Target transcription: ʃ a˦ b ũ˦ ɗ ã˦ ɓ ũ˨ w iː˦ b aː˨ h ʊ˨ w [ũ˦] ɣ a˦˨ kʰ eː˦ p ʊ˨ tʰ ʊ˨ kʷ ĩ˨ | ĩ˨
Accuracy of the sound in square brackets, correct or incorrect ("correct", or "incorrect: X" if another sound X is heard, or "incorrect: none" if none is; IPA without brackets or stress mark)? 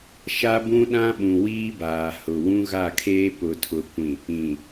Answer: correct